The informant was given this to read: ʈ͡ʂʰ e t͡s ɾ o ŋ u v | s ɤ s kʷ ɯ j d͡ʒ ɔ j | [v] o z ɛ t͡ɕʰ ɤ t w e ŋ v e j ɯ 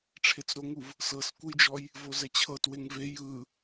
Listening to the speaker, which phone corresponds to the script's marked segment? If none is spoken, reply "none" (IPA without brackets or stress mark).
v